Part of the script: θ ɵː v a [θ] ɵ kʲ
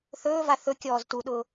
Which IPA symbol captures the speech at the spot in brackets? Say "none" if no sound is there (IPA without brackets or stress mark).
θ